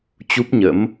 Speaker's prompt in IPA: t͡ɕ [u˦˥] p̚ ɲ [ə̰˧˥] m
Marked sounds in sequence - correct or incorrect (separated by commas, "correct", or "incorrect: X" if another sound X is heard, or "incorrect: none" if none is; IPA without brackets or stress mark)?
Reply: correct, correct